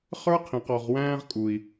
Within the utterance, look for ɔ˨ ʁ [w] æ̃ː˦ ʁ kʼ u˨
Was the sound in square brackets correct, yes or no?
yes